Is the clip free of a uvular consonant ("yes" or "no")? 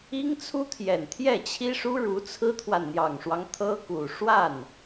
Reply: yes